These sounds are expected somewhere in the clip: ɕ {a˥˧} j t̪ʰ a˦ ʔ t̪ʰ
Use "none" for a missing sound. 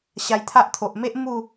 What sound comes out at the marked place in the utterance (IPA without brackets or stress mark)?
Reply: a˧